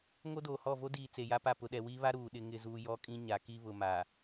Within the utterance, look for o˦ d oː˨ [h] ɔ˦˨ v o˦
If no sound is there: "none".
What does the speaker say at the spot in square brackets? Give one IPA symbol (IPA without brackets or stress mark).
h